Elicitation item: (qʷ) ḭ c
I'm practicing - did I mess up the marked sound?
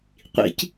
no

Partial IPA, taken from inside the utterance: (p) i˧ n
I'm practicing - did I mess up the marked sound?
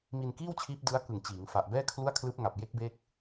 yes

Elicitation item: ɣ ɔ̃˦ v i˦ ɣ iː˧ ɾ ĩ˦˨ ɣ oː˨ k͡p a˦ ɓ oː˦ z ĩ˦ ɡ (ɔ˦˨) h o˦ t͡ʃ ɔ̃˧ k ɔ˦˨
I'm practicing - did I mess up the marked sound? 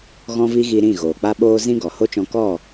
yes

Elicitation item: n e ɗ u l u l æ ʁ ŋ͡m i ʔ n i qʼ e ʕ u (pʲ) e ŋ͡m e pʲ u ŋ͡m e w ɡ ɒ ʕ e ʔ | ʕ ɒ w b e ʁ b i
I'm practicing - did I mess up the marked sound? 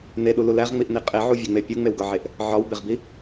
yes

